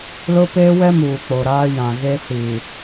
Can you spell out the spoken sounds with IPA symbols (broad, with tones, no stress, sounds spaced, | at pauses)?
l ʊ˦ p eː˦ w ɛ˦ m uː˨ k͡p o˨ ɾ aː˦ j ã˨ ɣ e˦ s iː˨